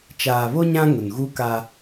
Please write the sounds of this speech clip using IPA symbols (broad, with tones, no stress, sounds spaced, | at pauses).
t͡ʃ aː˨ β o˦ ɲ ã˦ ŋ ʊ˨ n ɣ u˦ k a˦